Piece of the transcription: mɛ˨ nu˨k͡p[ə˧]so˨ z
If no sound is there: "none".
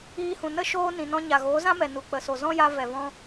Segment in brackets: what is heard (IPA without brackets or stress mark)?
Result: ə˨